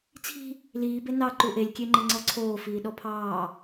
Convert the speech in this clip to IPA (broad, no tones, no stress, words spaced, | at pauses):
t͡sʰi̤ | liːbe nɑ ǃuʔelʲkʲeŋ͡ǃɪ ŋ͡ǀɔǀʰoː fiːɗɔpʰɑː